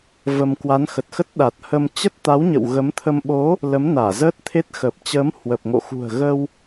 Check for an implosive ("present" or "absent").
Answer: present